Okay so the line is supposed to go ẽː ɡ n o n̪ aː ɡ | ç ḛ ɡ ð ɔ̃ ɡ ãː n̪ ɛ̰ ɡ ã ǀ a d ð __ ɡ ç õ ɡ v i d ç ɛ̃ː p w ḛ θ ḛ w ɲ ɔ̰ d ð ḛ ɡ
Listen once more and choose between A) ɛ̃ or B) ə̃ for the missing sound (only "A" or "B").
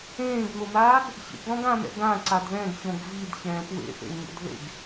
A